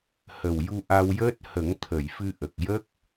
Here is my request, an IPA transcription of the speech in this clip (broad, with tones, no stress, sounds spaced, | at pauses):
h ə˨˩ w j u˧ ʔ a˧ w j əː˦˥ t̚ h ə˨˩˦ ŋ t̪ʰ ə˨˩˨ j f ɨ˧ ʔ ə˨˩ k̚ j ə˦˥ k̚